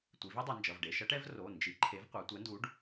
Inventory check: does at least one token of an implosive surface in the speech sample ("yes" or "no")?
no